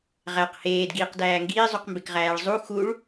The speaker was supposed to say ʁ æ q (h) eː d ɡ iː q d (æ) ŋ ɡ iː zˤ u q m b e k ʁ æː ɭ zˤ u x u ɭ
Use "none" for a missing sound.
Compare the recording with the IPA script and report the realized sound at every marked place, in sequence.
h, æː

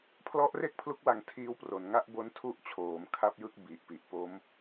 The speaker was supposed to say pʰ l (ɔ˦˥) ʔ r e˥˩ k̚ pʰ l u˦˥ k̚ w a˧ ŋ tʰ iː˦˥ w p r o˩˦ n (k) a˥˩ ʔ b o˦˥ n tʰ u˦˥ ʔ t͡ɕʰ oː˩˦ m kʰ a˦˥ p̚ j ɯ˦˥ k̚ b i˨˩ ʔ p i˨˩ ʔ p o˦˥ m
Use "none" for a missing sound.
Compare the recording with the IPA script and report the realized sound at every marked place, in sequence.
ɔ˦˥, ŋ

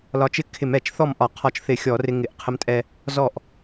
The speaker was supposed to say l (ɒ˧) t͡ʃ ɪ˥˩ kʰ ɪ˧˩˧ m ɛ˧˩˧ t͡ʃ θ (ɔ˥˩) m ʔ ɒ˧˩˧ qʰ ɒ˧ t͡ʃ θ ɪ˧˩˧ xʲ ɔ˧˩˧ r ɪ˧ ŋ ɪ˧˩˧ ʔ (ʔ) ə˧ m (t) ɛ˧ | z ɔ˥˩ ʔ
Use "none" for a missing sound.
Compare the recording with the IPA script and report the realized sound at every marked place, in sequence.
ɒ˧, ɔ˥˩, qʰ, tʼ

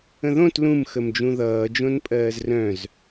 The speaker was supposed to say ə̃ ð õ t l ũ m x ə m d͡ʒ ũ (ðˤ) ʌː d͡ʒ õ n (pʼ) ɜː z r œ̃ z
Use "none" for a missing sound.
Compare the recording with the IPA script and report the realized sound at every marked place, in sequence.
ð, pʼ

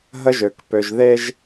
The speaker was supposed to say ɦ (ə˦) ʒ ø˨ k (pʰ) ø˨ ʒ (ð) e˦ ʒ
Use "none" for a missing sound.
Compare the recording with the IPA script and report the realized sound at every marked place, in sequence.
ə˦, p, ð

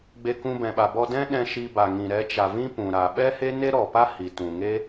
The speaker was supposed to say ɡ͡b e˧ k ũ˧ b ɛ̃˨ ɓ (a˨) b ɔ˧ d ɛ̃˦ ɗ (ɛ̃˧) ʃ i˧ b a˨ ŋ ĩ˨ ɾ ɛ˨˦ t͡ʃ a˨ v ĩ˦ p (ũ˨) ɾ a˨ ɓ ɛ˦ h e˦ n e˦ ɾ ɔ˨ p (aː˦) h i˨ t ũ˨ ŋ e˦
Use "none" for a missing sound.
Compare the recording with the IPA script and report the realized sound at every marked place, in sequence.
a˨, ɛ̃˧, ũ˨, a˦

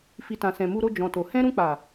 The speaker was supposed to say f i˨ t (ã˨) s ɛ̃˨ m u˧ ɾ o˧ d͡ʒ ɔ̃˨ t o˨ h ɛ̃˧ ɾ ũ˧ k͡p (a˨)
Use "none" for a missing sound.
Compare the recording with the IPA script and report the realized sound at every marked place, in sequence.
ã˨, a˨

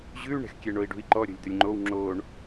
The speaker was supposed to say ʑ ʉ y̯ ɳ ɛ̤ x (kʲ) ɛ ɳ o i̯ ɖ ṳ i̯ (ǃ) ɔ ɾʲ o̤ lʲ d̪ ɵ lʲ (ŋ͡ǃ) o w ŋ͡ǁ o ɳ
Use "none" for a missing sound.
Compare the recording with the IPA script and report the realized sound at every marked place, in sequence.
kʲ, ǃ, ŋ͡ǃ

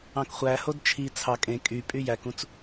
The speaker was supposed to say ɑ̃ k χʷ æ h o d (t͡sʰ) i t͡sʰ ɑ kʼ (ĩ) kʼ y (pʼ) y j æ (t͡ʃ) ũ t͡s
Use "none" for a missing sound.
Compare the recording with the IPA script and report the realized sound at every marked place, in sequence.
t͡ʃʰ, ẽ, pʼ, k

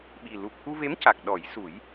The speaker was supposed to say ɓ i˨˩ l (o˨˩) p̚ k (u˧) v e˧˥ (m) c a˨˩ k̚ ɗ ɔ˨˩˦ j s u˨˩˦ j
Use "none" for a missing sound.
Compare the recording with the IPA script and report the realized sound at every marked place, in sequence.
u˨˩, u˧, m

